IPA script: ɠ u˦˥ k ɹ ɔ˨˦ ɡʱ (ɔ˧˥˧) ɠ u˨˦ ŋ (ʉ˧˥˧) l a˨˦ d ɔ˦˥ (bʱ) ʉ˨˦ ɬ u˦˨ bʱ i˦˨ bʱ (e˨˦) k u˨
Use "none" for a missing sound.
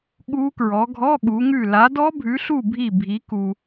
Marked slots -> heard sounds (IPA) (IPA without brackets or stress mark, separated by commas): ɔ˧˥˧, ʉ˦˨, bʱ, i˨˦